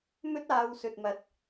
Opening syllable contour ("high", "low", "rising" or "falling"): high